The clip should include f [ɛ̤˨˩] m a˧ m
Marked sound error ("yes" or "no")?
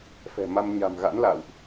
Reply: no